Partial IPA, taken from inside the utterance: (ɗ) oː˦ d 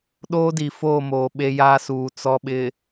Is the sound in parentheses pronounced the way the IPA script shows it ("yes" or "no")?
yes